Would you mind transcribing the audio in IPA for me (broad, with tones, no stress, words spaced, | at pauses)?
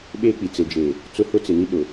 ɓeː˦k͡pi˨ t͡se˨d͡ʒeː˨ | t͡sʊ˦hʊ˦t͡sɪ˨ni˦ ɗʊ˨